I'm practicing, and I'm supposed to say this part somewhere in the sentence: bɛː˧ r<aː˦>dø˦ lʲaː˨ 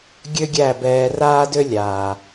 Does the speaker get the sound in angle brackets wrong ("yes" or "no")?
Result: no